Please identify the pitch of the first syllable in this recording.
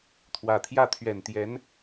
low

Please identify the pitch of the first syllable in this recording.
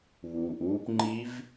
low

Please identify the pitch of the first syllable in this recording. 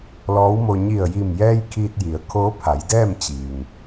rising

